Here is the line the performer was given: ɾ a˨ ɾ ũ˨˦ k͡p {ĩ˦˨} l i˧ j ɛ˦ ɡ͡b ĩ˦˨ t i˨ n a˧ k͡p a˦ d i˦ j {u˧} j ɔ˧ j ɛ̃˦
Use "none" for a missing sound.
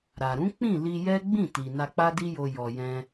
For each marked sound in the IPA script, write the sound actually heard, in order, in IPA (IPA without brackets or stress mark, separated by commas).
ĩ˦˨, o˧